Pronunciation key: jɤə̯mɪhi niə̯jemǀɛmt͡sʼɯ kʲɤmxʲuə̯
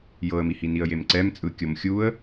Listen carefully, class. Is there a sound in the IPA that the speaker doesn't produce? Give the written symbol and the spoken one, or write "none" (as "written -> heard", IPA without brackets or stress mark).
ɪ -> i